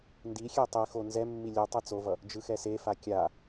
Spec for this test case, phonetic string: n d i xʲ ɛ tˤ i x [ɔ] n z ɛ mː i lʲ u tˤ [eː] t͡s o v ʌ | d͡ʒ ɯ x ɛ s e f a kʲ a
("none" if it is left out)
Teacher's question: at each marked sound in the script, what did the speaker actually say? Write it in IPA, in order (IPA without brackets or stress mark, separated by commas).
o, e